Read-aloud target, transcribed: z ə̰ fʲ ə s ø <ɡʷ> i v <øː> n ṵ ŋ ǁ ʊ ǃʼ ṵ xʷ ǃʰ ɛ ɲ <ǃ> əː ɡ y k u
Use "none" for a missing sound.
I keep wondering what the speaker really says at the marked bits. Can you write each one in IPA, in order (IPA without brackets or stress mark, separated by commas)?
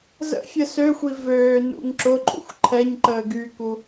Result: xʷ, øː, ǃ